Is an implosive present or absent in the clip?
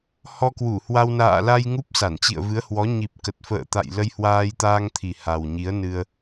absent